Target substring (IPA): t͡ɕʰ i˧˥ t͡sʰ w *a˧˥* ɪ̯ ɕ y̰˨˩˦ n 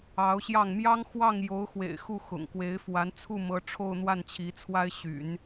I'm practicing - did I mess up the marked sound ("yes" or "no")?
yes